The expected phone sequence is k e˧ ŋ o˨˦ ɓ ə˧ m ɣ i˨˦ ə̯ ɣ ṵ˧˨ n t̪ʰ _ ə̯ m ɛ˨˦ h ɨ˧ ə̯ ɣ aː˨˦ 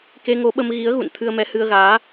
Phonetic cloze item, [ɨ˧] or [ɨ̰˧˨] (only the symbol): ɨ˧